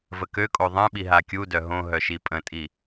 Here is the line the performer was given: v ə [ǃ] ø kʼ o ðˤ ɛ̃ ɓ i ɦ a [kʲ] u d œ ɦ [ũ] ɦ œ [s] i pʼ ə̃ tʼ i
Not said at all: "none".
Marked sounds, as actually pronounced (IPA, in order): k, kʲ, õ, ʃ

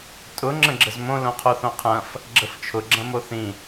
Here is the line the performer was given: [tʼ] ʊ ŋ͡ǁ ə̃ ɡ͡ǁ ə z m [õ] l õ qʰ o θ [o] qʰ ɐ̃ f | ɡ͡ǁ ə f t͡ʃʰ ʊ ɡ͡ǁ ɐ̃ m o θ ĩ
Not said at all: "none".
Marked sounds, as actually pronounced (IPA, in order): tʼ, õ, õ

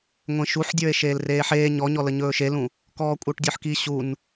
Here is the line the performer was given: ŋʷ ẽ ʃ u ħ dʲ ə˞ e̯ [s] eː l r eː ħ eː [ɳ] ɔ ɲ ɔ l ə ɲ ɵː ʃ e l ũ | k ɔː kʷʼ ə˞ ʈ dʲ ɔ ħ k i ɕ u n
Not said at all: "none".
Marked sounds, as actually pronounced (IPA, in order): ʃ, ɲ

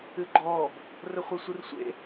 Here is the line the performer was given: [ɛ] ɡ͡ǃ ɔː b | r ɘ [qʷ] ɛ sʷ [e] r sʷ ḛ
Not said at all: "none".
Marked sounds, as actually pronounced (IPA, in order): ɨ, χʷ, ɨ

